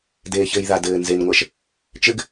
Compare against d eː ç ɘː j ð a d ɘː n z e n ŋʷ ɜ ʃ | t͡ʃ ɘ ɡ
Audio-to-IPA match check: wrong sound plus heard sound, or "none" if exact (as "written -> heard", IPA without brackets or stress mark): none